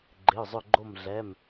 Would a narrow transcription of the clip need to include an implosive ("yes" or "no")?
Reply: no